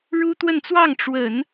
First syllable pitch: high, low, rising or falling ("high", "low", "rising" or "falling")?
high